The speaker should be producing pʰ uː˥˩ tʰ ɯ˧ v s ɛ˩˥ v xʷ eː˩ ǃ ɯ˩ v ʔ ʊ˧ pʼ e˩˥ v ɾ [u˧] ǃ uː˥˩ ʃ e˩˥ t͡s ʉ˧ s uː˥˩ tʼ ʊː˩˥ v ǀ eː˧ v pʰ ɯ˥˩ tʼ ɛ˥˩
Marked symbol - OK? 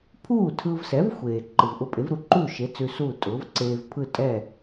yes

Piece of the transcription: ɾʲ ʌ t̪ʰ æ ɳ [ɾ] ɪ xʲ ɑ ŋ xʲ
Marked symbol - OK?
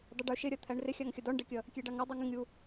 no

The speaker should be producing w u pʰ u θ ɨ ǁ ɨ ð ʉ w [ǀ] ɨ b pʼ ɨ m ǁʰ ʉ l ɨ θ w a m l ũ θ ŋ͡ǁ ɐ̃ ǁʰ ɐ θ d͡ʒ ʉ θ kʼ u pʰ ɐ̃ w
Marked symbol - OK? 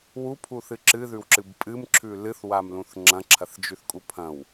no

